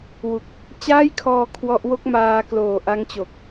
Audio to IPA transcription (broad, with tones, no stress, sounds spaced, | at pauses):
w u˨˩ k̚ | t͡ɕ aː˥˩ j kʰ ɔː˧ kʰ w ɔ˦˥ ʔ w o˥˩ k̚ m aː˧ k l oː˨˩ ʔ a˦˥ ŋ t͡ɕ o˨˩ k̚